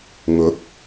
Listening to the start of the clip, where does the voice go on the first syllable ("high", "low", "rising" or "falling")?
rising